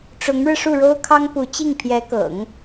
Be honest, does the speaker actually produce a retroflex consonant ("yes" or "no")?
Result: yes